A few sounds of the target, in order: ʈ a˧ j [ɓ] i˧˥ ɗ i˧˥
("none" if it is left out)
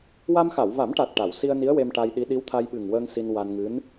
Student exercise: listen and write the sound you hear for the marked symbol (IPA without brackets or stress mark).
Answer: ɗ